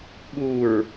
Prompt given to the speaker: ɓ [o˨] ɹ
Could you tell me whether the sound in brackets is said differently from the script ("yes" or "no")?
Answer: yes